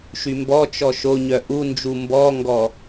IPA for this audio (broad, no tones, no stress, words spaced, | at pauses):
ʃymbɔt͡ʃɔ ʃo ɲœʔund͡ʒu mbɔŋɡɔ